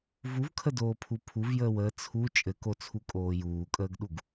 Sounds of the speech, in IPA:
v u v kʰ ə d oː pʰ u pʰ u v j əː w əː t͡sʰ u t͡ʃʼ ɘ k o t͡sʰ u kʼ oː j uː kʼ əː ɡ ɗ u ɡ

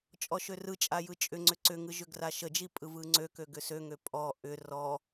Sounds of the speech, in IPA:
t͡ʃʼ ɔ ʃ ø r ɯ t͡ʃʼ a j ɯ t͡ʃʼ ʏ ŋ͡ǀ ʏ ǀ ʏ ŋ ɯ ʒ ʏ ɡ r a ʃ ə d͡ʒ i pʼ ɯ v ɯ ŋ͡ǀ ø k ø ɡ ʏ s ø ŋ ø pʼ ɔ ʔ ʏ r ɔ

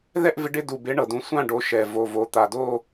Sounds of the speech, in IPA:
ð ɛ˥˧ ʔ v ɪ˨˦ ɖ ɪ˥˧ d u˨˩ b ɪ˨˦ ɳ ɤ˨˩ d ũ˨˦ sʷ ã˥˧ ɖ o˨˦ ʃ ɛ˨˩ v o˨˩ v o˨˦ t̪ a˨˩ d o˥˧

